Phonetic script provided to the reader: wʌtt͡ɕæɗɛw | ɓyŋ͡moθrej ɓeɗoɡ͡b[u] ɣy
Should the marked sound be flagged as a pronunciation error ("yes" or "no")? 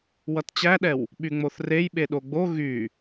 yes